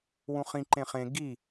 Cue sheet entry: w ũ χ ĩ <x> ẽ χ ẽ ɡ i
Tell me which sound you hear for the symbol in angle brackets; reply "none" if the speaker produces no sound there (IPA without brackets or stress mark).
ǃ